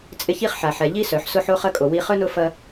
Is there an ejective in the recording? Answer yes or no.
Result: yes